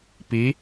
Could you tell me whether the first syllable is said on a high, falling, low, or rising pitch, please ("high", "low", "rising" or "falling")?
rising